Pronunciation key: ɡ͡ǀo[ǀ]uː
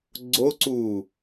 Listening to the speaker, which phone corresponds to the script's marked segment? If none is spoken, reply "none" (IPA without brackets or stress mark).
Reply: ǀ